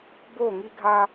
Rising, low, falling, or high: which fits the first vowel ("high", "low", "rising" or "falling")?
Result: falling